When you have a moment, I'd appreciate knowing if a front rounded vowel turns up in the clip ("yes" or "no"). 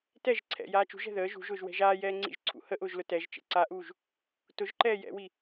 no